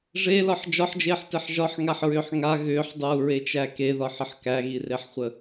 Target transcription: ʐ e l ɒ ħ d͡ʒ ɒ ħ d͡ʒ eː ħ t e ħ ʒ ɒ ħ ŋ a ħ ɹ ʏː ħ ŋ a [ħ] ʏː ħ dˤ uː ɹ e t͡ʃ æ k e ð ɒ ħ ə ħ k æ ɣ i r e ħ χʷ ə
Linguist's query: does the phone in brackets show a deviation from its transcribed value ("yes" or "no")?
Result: yes